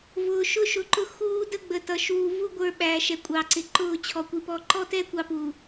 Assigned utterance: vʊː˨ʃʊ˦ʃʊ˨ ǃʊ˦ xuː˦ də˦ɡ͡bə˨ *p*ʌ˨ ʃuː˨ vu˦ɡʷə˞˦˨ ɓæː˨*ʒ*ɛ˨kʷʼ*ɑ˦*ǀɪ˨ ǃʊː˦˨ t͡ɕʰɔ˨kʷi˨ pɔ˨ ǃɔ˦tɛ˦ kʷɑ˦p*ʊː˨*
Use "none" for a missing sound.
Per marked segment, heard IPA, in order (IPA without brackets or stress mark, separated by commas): t, ʃ, ɑ˨, uː˨